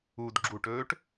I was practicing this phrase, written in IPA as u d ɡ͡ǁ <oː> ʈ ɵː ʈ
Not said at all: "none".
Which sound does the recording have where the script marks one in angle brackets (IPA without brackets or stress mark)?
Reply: uː